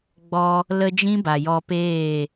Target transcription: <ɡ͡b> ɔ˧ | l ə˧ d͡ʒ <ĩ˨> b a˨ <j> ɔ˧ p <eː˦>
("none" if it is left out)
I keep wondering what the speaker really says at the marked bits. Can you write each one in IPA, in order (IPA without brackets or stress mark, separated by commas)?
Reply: ɡ͡b, ĩ˦, j, eː˦˨